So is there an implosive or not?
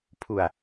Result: no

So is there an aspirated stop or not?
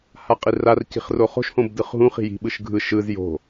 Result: no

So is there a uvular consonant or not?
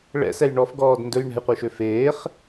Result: yes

